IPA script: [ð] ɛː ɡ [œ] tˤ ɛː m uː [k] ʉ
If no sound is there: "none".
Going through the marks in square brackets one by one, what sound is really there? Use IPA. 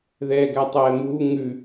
ð, æ, ŋ

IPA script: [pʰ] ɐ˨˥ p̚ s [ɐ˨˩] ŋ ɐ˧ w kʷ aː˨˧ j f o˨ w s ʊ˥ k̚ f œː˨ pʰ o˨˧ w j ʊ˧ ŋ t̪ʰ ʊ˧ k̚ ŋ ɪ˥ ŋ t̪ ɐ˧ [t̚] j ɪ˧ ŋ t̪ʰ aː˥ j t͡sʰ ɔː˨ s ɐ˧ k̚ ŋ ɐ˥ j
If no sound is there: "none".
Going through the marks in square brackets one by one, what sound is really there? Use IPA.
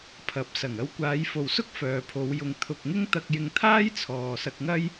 pʰ, ɐ˨˩, k̚

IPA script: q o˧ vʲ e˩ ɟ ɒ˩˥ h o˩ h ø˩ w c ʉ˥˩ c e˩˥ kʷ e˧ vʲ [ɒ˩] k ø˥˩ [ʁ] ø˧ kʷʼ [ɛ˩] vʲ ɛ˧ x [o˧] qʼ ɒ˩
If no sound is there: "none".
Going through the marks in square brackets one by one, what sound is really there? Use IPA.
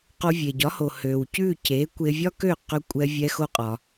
ɒ˥, q, ɛ˧, o˧

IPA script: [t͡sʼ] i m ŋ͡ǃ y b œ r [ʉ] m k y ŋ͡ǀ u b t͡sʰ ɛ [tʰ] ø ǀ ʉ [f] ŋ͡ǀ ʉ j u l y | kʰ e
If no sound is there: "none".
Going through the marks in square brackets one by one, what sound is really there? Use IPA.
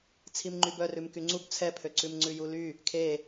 t͡sʰ, ʉ, pʰ, m

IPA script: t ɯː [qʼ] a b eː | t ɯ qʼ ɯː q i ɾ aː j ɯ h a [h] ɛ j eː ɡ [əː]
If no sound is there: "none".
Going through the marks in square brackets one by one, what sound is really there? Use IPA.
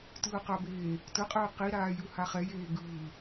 q, χ, ɯː

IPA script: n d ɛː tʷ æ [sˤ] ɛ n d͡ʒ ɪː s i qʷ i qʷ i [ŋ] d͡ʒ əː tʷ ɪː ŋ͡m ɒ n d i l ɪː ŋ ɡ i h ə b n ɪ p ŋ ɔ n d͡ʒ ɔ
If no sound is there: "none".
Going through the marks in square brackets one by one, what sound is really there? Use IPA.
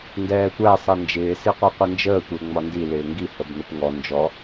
sˤ, n

